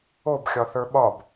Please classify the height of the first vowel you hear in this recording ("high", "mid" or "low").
mid